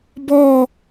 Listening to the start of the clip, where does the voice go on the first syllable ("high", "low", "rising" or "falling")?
falling